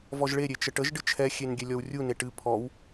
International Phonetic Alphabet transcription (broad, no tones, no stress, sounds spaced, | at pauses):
v ɔ ʒ ɭ e ɾʲ e t͡ʃ ə ʈ ə ʒ ɖ ɨ t͡ʃʰ ɛ xʲ e n ɡʲ ɛ lʲ ɔ w rʲ u n e ʈ ɨ pʰ ɔ w